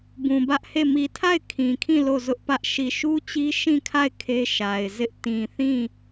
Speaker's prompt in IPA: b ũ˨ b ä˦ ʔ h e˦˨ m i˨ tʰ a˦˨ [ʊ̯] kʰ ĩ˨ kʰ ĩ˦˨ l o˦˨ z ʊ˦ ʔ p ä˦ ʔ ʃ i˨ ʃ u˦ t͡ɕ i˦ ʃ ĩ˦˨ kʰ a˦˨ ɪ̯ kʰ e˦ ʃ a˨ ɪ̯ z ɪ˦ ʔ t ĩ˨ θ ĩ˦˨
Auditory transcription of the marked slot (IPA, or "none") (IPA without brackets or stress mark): ɪ̯